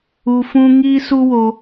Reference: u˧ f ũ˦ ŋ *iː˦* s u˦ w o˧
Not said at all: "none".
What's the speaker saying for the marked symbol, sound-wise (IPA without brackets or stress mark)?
iː˦